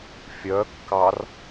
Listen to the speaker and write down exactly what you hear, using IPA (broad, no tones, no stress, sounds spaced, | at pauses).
fʲ œ kː ɑ r